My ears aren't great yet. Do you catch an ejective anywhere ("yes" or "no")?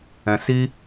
no